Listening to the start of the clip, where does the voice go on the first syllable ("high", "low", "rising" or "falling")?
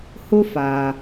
high